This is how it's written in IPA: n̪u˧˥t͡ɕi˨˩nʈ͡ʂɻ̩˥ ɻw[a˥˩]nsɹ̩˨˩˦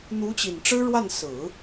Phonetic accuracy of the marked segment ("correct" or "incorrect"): correct